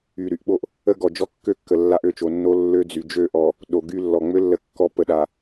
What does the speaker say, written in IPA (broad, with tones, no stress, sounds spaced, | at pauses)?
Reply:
y˨ ɾ y˨ ʔ ɓ o˦ ʔ | ə˦ ɡ ɔ˨ d͡ʒ ɔ˦ kː ø˦ kː ə˨ lː a˦ ʔ ø˦˨ t͡ʃ o˨ nː o˦ lː ø˦ d͡z y˨ d͡ʒ ø˦˨ ʔ ɔ˨ | ɗ o˨ ɡ y˦ lː ɔ˨ ŋ͡m ø˦ lː ə˨ kː ɔ˨ p ə˨ ɗ a˨